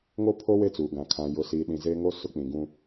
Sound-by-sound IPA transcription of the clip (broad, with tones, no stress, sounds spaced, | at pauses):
ŋ o˦ pʰ o˦ w e˦ t͡s uː˨ ɡ ã˨ kʰ ã˨ j ʊ˨ s iː˨ ɗ ĩ˨ z eː˦ ŋ o˦ s ʊ˦ k͡p ĩ˨ ɡ ũ˦